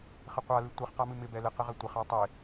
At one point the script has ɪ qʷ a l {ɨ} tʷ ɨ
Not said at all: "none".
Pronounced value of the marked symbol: ɨ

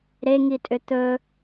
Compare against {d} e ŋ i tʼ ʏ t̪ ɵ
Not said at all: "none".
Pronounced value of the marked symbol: ɾ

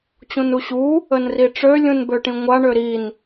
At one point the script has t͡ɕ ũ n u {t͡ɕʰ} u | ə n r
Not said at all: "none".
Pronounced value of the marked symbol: ɕ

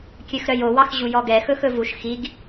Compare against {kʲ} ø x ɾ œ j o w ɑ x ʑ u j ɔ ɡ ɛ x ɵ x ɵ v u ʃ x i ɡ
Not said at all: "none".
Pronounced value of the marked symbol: kʲ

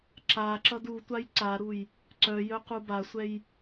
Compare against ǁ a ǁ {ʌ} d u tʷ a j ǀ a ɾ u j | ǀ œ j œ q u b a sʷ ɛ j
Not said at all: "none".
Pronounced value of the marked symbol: ʌ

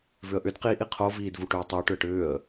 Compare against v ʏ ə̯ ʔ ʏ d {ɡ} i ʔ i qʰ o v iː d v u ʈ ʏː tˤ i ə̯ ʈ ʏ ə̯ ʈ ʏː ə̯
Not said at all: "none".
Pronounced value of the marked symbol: q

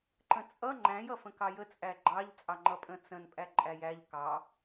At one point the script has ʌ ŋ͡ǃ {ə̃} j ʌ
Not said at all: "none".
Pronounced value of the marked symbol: æ̃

